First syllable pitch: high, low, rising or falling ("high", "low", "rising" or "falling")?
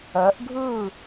rising